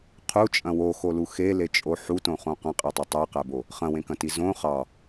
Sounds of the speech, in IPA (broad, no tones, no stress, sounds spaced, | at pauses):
qʰ u t͡ʃʼ ɐ̃ w o x o l u x e l e t͡ʃʼ o ħ u t õ χ õ q ɐ̃ qʼ e tˤ o tˤ ɜ q æ b o | χ ɐ̃ w ẽ k ɐ̃ t i z õ χ ɑ